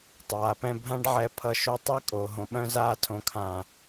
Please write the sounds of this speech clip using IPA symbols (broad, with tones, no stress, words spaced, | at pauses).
tˤaː˨pɛ̃˧ bʱã˦ɖʕɛ˧ pʰʌ˧ʃo˧ tˤɛ˦kʼo˨ ɦõ˨ɓœ̃˧zaː˧ tʰõ˨kʰã˨